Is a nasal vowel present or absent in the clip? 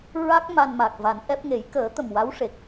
absent